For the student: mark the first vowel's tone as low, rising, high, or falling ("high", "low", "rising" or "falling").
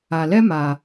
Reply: low